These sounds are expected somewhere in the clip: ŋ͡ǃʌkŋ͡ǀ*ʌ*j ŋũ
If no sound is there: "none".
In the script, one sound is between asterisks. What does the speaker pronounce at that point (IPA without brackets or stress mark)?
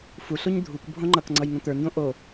ʌ